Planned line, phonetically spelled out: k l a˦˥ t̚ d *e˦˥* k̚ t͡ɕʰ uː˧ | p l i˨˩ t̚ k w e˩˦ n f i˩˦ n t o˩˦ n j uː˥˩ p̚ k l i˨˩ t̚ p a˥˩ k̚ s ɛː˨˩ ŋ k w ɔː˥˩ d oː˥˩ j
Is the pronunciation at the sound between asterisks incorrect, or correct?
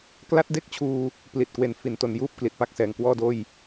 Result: incorrect